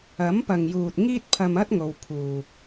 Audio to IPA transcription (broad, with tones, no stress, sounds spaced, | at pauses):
ɐ˨˥ m p ɐ˨ ŋ j uː˨ t̚ ŋ iː˥ t̚ pʰ ɐ˧ m ɐ˥ t̚ ŋ o˨˧ w pʰ uː˨ k̚